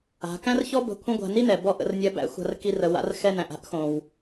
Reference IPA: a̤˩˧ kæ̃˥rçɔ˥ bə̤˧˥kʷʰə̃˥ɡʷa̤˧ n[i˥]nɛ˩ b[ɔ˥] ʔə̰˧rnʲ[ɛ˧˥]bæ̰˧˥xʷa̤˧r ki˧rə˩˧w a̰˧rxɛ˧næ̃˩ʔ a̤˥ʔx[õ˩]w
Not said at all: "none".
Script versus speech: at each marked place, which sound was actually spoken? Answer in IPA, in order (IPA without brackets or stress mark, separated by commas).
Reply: i˥, ɔ˥, ɛ˧˥, õ˩